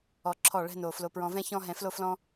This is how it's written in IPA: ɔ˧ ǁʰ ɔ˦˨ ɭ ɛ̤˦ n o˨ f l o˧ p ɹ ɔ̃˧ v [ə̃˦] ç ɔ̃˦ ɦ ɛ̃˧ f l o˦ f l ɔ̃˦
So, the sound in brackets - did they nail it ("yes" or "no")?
no